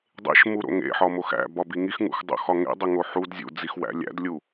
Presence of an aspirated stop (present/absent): absent